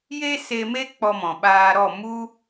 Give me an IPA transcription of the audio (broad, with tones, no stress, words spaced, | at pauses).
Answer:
je˦se˧me˦ k͡pɔ˧mɔ̃˨ɓaː˧ɾɔ˦˨ mu˦